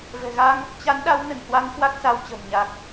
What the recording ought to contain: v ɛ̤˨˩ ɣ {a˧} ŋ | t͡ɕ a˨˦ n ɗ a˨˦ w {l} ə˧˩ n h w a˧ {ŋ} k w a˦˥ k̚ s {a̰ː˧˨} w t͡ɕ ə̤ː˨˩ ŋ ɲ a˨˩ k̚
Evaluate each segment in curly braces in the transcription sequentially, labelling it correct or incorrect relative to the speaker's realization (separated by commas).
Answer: correct, incorrect, correct, incorrect